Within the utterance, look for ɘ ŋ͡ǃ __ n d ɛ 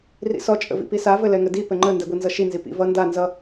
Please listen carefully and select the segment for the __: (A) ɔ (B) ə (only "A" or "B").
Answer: B